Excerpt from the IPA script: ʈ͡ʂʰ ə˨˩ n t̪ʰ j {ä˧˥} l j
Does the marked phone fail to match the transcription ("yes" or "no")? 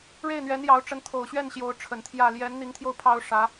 yes